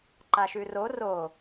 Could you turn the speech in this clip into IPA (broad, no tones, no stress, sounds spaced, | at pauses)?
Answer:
ǃ a ʃ ʉ r o r o